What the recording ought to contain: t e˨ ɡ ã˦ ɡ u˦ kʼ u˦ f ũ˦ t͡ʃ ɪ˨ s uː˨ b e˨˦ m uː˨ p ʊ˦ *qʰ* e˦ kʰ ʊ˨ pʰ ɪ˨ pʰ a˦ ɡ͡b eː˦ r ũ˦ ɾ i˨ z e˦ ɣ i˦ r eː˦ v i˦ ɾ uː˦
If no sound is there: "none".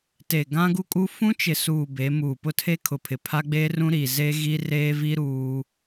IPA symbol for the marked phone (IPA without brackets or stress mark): tʰ